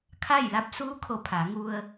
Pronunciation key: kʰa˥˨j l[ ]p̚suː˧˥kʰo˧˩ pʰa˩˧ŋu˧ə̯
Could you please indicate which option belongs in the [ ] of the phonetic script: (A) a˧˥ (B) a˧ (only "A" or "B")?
B